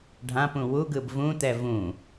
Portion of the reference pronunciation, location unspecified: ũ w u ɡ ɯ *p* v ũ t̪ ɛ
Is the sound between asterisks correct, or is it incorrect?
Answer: incorrect